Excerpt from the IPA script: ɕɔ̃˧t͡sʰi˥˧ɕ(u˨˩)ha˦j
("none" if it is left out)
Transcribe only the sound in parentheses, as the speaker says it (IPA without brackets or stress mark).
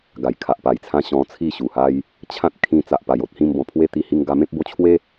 u˨˩